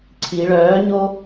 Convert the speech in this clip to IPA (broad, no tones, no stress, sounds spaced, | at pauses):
ǀʰ i ɭ œː ɲ o